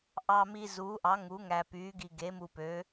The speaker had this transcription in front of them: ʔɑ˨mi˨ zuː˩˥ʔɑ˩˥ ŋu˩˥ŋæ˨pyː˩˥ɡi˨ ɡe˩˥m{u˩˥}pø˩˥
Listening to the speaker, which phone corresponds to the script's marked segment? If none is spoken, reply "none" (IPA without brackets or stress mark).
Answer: u˨